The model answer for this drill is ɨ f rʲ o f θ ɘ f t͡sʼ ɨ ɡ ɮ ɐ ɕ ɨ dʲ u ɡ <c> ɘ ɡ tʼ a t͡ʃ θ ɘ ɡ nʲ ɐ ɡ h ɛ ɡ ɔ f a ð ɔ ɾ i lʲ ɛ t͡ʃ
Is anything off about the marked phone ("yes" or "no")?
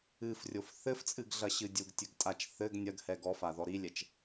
yes